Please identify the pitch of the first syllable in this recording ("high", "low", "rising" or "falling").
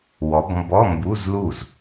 rising